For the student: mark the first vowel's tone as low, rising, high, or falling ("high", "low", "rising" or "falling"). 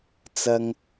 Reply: low